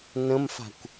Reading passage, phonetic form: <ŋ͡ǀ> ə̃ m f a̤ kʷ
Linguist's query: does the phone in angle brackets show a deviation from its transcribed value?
yes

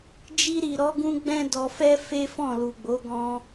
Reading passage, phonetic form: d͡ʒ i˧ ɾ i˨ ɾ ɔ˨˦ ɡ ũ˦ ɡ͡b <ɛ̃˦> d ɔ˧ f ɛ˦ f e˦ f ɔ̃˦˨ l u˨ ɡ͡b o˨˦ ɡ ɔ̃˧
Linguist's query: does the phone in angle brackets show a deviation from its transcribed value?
no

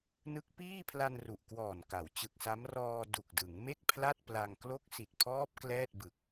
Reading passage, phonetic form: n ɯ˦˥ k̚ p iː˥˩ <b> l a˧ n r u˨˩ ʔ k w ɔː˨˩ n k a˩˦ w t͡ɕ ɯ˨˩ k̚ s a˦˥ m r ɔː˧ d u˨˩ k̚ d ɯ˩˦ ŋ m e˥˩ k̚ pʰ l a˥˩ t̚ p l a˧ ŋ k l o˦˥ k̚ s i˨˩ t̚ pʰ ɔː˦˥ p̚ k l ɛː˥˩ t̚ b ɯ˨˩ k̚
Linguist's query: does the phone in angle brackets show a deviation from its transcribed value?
yes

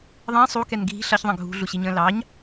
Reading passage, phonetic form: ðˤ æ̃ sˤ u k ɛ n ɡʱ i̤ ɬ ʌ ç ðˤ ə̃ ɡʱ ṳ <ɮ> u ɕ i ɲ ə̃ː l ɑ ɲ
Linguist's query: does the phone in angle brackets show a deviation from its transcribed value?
no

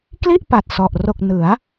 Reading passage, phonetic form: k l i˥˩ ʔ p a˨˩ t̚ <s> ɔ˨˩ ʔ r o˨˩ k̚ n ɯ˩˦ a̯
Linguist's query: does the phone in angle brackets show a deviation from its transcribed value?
no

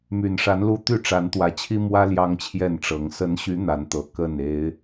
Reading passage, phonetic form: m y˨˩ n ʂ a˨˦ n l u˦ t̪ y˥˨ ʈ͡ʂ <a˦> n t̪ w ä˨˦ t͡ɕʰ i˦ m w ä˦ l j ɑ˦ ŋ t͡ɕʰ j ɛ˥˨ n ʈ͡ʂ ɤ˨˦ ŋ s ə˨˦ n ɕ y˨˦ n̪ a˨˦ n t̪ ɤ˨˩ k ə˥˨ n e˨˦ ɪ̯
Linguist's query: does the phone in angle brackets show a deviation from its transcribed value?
yes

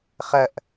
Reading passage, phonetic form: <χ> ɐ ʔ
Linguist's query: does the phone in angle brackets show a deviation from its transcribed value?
no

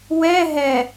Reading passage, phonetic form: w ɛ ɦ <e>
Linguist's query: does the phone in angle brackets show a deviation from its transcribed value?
yes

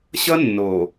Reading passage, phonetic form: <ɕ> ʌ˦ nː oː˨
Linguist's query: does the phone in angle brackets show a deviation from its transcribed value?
no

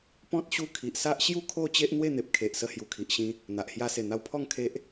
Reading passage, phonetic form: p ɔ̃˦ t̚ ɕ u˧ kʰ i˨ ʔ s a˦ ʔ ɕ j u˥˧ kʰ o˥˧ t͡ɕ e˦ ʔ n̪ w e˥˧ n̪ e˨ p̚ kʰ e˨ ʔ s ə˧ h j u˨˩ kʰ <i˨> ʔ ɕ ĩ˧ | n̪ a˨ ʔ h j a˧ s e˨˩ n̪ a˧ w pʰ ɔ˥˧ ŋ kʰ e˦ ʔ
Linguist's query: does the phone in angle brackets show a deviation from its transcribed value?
no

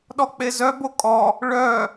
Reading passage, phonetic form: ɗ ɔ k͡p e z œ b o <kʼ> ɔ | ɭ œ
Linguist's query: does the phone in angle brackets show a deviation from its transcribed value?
no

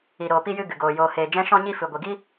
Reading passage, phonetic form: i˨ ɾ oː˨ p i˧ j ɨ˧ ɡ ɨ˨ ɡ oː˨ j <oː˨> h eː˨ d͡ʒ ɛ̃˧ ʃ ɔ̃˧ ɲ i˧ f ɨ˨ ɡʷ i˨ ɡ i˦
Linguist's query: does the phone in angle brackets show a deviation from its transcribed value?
no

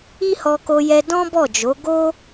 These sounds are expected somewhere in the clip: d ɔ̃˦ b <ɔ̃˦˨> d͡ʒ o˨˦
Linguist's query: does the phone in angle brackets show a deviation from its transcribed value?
yes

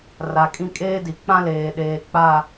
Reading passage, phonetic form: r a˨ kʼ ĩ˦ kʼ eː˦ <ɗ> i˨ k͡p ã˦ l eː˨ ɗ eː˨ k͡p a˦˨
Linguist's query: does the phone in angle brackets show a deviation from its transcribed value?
yes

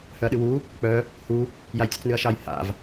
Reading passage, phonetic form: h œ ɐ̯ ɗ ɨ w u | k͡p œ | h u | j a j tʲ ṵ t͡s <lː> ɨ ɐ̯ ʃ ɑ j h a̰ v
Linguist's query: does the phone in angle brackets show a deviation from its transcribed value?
yes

